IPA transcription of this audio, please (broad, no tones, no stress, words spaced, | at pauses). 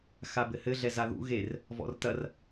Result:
xabɘhɘ ɮɛzaðṵ ɣer | vɔ̰rtɐr